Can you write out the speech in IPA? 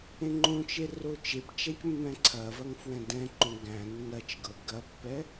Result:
ẽ ŋ͡ǃ õ t͡ʃ e r o t͡ʃ e p t͡ʃ æ c mː ɛ̃ ǀʰ ɐ v ɐ ŋ f w ɛ̃ d ɛ̃ ǃ õ ɡ æ̃ nː ɐ t͡ʃ ɡ ɤ ɡ ɐ pː ɛ

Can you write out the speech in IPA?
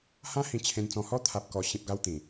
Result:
h ã˦ h ĩ˧ t͡ɕʰ ẽ˧ n t͡s ɔ̃˧ h ɔ˦ t̪ʰ a˨ p̚ k ɔ˨˩ ɕ ĩ˨ p̚ ɡ a˧ w t̪ ĩ˨˩

